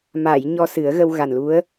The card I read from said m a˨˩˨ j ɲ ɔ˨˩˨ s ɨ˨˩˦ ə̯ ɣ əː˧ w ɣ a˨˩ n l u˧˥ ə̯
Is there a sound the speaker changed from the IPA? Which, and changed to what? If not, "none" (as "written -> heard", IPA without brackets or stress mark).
ɔ˨˩˨ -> ɔ˧